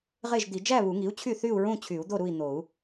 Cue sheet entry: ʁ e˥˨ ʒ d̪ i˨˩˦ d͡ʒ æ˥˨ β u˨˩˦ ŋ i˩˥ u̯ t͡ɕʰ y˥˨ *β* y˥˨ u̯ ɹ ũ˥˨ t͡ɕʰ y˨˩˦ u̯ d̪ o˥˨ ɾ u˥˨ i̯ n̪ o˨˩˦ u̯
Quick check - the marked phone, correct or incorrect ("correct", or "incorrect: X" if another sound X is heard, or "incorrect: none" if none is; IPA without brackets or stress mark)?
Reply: incorrect: θ